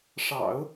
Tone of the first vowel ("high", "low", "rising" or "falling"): low